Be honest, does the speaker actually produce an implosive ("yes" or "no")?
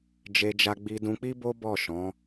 no